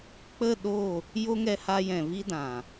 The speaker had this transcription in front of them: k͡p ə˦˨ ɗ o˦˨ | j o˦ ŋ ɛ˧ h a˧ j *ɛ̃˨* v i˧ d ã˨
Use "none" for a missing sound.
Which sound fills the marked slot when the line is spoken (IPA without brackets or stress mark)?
ɛ̃˨